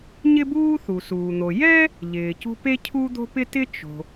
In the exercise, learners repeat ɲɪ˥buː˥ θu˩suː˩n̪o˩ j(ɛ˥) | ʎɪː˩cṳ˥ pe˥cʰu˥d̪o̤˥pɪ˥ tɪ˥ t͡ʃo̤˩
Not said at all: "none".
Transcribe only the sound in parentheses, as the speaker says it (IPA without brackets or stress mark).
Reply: ɛ˥